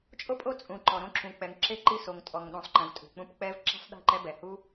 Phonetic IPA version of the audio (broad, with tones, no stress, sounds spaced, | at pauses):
t͡ʃʼ o˦ pʼ o˦ t͡sʼ ũ˨ ǃ ɔ˨ ɾ õ˦ ǁ ũ˨ k͡p ɛ˨ ŋ ǁ e˦ ǃ i˦˨ s o˨ ŋ tʼ ɔ˨ ŋ ɗ ũ˨ sˤ ǃ ẽ˨ v tʼ ṳ˨ k͡p ũ˦ p k͡p ɛ˦ v ǁ i̤˦ sˤ ɗ i̤˦˨ ǃ ɛ˦ b ɛ˨ h u˦